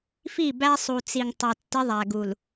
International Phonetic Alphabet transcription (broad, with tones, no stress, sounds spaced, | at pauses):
f i˦˨ b æ˦ sˤ u˨ t͡s i˨ ŋ tˤ ʌ˨ tː ɪ˦ ðˤ æ˨ ɡ u˨ l